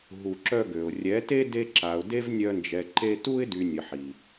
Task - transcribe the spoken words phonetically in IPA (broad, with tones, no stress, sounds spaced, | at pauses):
ɦ u˧ ǁ œ˦ ɡ ø˨ ʊ̯ rʲ ɛ˨˦ t e˦ d e˦ ǁ a˨ ʊ̯ d e˦ v nʲ œ˧ n d͡ʒ ɛ˨ ǃ e˧ t u˦ ɪ̯ d y˨ nʲ ə˨ ħ i˨